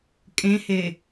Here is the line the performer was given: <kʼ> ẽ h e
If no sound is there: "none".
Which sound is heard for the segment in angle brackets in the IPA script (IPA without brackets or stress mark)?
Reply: kʼ